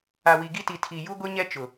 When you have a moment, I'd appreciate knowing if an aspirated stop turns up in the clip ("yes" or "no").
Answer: yes